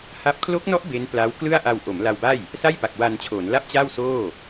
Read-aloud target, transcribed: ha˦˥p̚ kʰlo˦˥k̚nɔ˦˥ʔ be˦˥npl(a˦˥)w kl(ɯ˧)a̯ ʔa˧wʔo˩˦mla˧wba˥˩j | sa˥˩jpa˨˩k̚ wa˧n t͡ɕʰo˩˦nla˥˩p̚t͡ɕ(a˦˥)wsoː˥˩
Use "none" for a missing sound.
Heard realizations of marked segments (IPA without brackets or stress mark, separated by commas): a˦˥, ɯ˥˩, a˥˩